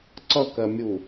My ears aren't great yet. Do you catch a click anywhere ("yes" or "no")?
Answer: yes